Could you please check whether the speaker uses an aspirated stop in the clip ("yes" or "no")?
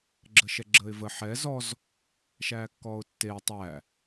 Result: no